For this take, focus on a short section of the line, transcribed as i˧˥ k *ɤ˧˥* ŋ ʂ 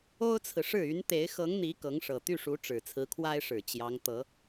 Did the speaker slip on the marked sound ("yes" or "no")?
no